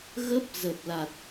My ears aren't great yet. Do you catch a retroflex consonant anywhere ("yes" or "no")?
no